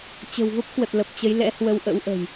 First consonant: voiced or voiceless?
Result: voiceless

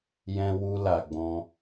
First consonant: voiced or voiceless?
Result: voiced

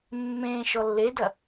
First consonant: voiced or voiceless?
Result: voiced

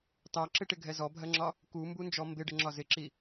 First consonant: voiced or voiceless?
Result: voiceless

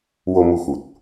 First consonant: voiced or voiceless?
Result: voiced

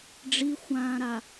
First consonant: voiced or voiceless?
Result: voiced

